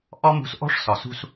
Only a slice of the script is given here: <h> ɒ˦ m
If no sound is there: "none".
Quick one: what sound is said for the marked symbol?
ʔ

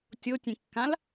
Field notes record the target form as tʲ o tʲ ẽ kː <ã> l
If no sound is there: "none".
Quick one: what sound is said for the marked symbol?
ã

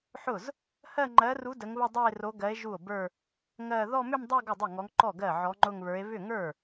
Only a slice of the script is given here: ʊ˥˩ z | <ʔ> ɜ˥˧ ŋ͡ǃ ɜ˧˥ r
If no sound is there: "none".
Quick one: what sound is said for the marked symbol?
h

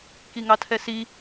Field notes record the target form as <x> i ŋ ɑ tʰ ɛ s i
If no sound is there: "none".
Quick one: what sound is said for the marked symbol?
k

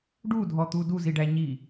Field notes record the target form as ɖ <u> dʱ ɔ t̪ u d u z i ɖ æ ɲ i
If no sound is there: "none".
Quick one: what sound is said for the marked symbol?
u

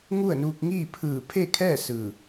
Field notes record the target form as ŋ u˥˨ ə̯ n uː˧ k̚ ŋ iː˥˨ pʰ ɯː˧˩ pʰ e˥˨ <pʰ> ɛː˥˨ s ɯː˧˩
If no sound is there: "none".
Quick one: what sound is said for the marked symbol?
kʰ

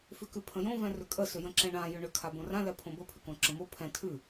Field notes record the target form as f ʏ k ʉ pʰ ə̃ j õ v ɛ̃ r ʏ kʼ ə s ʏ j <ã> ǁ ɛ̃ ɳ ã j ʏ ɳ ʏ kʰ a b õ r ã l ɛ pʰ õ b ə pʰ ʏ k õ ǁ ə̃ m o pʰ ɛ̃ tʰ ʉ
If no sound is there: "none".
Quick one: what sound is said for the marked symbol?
ə̃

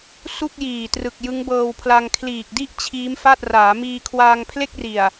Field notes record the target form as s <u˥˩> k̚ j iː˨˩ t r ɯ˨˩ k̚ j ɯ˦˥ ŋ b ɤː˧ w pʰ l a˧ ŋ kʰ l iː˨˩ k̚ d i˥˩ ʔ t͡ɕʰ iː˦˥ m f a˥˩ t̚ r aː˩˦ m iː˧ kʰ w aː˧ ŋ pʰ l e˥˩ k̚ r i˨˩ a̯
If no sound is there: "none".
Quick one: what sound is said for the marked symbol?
u˥˩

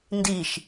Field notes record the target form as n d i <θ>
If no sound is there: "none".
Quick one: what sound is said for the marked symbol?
ʃ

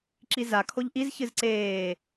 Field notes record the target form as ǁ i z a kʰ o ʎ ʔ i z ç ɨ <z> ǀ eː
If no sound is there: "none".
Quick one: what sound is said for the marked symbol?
z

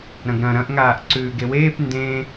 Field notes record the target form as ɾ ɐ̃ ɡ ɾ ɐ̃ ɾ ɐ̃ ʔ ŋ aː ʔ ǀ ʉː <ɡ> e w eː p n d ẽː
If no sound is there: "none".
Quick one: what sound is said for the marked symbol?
ɡ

